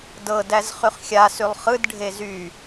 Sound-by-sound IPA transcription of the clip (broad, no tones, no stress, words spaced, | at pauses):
dɤdæz χyχxʲasylˠ χɯd ɖʱezy